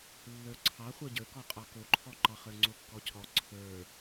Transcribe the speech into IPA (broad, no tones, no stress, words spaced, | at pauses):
lːə˞ǀʰɑ χʷə˞ɟə˞kɔqʼɑ koǃʰɔǃɑ χə˞ŋ͡ǀokːɔcʰɔ ǀʰə˞